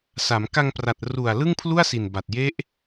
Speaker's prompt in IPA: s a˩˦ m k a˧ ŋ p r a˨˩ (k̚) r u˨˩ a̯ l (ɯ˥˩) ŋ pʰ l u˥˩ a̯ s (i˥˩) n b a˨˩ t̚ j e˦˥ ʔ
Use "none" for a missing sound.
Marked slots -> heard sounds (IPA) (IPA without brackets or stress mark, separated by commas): t̚, ɯ˥˩, i˨˩